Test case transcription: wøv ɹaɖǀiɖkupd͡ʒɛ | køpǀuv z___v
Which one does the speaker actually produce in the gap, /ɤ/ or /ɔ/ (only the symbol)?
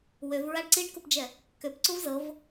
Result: ɤ